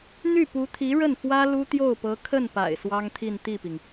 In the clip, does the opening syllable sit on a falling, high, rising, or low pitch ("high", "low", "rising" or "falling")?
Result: falling